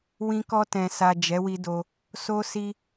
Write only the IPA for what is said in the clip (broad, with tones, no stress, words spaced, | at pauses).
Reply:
wĩ˧kɔ˧ tɛ̃˨sa˨ d͡ʒɛ˨˦wi˧do˧ | so˧si˧